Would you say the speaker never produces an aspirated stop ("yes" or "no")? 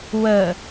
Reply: yes